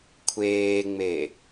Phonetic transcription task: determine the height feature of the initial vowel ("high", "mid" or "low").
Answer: mid